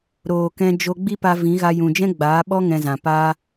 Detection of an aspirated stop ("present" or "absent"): absent